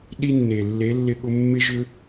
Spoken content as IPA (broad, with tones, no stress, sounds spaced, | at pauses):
ɗ i˦ nː e˨ lː e˨˦ lː ɪ˧ ɠ ʊ˧ mː ɪ˦ ʒ ʏ˦